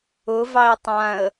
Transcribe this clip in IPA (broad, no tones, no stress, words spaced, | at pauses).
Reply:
ʊvɑɪ̯ tˤãə̯